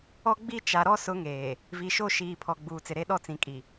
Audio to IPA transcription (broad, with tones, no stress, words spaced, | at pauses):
ɔ˦ɡ͡bi˦t͡ʃa˨ ɾɔ˦sʊ˨˦ŋeː˨ | vi˨ʃo˦˨ ʃiː˨pʰɔ˨ ɡ͡buː˨t͡sɪ˨ɾe˦ ɗɔ˦t͡sĩ˨ kʼi˨